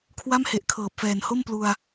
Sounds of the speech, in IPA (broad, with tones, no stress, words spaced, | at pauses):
kʰwa˥˩mhe˨˩ʔ kʰɤː˨˩p̚fɛː˨˩n ho˥˩mplu˧a̯